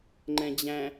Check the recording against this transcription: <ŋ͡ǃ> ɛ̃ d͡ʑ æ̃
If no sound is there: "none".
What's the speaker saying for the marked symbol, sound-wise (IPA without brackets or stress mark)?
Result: ŋ͡ǃ